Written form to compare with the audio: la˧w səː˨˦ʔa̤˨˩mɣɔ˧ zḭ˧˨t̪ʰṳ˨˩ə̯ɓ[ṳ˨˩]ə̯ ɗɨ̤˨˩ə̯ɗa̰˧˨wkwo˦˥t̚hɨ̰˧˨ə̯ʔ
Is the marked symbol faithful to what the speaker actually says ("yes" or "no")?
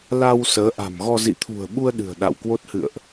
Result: no